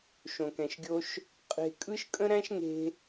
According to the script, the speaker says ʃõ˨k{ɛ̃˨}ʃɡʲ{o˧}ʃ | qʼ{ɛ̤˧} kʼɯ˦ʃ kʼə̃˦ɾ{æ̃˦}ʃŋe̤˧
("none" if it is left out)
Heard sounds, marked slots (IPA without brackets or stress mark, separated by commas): ɛ̃˨, o˧, e̤˧, æ̃˦